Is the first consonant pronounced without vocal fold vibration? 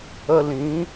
no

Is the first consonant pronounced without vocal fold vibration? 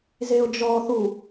no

